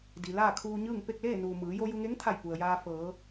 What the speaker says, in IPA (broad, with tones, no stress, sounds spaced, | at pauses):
d i˩ l aː˥˨ kʰ uː˧ ɲ ɯː˥˨ ŋ p e˥˨ k̚ l eː˥˨ n uː˩ m ɯː˩˧ j o˧ j u˧ ŋ e˧˥ ŋ t̪ʰ a˧˩ j p u˩ ə̯ j aː˧ f ɤː˩˧